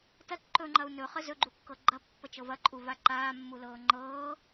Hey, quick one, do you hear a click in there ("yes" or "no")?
yes